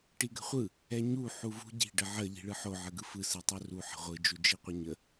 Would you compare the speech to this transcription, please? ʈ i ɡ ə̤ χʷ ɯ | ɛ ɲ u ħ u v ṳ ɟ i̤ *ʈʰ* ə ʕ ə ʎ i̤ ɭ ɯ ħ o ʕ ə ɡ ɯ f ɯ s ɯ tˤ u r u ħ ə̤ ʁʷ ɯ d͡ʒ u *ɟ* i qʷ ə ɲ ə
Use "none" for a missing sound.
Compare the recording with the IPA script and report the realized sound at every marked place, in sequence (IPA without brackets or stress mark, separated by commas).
ɖ, d͡ʒ